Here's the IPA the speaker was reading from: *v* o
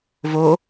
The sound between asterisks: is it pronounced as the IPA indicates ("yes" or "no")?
yes